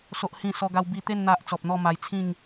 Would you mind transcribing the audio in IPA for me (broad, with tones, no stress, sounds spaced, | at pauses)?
s o˦ ʔ h ĩ˥˧ s ɔ˧ ɡ a˧ w b i˧ t̪ e˥˧ n n̪ a˦ ʔ t͡s ɔ˨ p̚ n̪ ɔ˥˧ m a˧ j t͡sʰ ĩ˥˧ ŋ